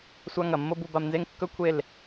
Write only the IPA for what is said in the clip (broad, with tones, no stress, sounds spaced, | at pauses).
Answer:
sʷ a˦ ŋ ɐ˨ mː o˦ b u˧ b a˧ m n z e˦ ŋ kː ɵ˦ kʷʰ e˦˨ l